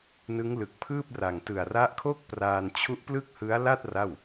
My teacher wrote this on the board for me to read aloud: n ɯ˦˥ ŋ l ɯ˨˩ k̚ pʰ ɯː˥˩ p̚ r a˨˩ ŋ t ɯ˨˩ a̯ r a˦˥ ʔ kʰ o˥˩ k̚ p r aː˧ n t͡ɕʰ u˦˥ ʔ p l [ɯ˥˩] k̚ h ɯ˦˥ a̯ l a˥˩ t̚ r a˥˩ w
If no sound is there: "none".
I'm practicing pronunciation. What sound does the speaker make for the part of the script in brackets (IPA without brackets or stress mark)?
ɯ˥˩